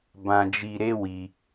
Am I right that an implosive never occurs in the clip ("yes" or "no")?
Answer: yes